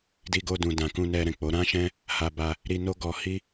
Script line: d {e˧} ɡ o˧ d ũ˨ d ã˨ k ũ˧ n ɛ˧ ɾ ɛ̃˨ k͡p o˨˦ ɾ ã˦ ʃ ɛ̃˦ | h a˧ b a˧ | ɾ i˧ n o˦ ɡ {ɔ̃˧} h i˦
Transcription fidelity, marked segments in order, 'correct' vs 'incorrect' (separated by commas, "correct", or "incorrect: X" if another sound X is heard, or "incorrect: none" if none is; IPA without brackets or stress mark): incorrect: i˧, incorrect: ɔ˧